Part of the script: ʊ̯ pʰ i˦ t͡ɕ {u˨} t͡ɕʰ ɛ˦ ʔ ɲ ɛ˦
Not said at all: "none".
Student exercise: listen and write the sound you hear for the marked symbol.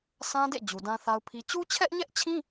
u˦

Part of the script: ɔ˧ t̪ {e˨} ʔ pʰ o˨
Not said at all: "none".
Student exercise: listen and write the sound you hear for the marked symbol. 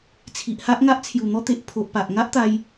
e˨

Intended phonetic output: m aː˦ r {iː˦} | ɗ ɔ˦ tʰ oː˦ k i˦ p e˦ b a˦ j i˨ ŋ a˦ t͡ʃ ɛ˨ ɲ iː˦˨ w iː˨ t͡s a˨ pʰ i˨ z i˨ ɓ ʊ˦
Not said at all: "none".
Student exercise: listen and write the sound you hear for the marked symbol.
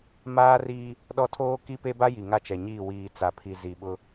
iː˦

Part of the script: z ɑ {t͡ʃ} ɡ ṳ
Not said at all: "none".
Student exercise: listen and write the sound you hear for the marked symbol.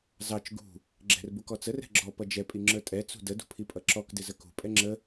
t͡ʃ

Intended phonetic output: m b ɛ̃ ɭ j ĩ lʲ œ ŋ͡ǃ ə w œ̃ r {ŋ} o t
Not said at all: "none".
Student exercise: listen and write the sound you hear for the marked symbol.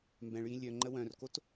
k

